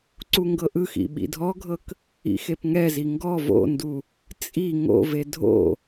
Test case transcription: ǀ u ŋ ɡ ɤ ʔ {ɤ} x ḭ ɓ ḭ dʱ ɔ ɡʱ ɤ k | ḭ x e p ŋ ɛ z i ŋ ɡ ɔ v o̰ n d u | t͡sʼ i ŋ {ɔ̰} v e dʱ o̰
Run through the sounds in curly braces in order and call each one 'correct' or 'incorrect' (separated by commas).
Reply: incorrect, incorrect